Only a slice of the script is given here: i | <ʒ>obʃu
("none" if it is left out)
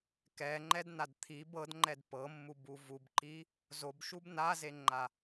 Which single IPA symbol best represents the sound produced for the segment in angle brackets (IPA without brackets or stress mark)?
z